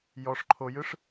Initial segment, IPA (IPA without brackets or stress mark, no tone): j